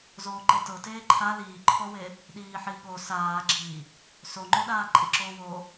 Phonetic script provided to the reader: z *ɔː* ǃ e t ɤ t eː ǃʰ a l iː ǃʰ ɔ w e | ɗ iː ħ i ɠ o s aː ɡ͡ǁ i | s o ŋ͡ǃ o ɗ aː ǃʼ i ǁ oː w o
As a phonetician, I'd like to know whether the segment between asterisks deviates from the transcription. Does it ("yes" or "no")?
yes